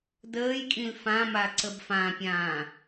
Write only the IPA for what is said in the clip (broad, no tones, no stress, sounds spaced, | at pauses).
d əː j kʼ ĩ l f ã m a ǀ ə b f ã pʲ ãː